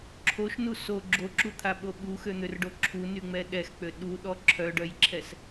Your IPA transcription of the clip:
ǁʰoʃnu so ɡ͡ǁoǁut̪ʰaɓo ɓuxøn̪ørɖo ǁʰunyŋ͡mɛ ɗɛxk͡pø ɗuɗɔ ǁʰœɖœjǁʰɛs

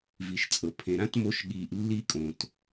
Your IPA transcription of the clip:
vi˨ʃt͡sʼɤ˨pʰẽ˨ ɾã˥tmo˦ʃɠiː˨ʔ lːi˦kʼõ˩t

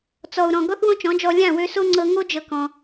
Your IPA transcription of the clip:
t͡sɔ˨u̯ɾɔ̃˨ ɡɔ˦θwõ˦t͡ʃɔ̃˨˦d͡ʒɔ˧ lʲã˦˨wø˧so˦ ŋ͡ǀɤ˧ ŋo˦d͡ʒɤ˧ kɔ̃˧

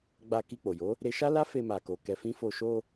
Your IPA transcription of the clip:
ɡ͡ba˧ ki˧k͡po˨jo˨˦ | ɾe˧ʃa˦la˦ fe˧ma˨ko˨ kɛ˧fĩ˦fo˦˨ ʃo˧

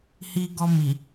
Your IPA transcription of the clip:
hi˧ɡɔ˧mi˨

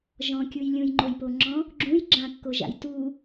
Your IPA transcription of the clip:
ʒɔ̃kʲuj lʲũjŋ͡ǃojpoŋ͡ǁɔ̃ | ɡ͡ǁũj ɡ͡ǁãkːoʒa̰j tu

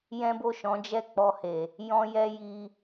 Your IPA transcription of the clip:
jɛ̃˦bo˦˨ʃɔ̃˨˦ d͡ʒɛ˦˨k͡pɔ˧he˨ | jɔ̃˦jɛ˦ ji˧

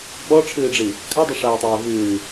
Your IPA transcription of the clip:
ɓɔʈ͡ʂʰɨːɖ͡ʐi | kʰadˤiʂaːtˤɛː vɨː

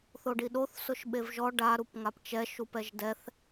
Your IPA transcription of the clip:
θoɖiɗoθ sʊʃɓevʒɔ ɖa ɾupŋapt͡ʃɛ ʃupɛʒdɛθ

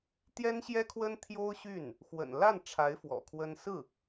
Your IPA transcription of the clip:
t̪jɛ˥nɕjɛ˥kʰwə˥n t̪ʰjo˥ʊ̯ɕy˥˩n | xwə̰˨˩n la˥˩nʈ͡ʂʰa˧˥ɪ̯ fwɔ̰˨˩kʰwə˥n sɹ̩˥˩

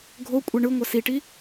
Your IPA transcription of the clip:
ɡʱo kʷʼɛɳɯŋʷa siʈi

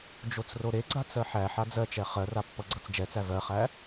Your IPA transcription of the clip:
d͡ʒot͡sroɾeɡ͡ǀat͡s ɜħæħa d͡zɜt͡ʃɛ χɜra pːʌɡ͡ǀʌt͡sd͡ʒɛt͡sæ vɜχæ

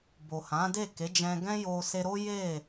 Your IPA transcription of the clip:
bo˨hã˨˦de˦˨ ke˨˦d͡ʒɛ̃˧ɡɛ̃˦jo˧ se˧ɾo˦ je˦˨

